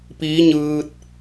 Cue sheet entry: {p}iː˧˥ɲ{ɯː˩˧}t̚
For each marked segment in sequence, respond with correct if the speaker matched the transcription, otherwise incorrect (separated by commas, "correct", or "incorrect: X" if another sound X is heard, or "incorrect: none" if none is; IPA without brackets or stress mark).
correct, incorrect: ɯː˧